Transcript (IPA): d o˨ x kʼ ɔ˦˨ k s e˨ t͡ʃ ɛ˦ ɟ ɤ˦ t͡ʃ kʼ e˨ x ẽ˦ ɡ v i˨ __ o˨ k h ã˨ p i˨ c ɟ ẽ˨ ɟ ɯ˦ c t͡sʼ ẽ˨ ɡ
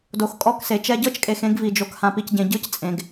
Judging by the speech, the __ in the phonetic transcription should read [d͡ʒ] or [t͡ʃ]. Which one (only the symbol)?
d͡ʒ